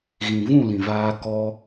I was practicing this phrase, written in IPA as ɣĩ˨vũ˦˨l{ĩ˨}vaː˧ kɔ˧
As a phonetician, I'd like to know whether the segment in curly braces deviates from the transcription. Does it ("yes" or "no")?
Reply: no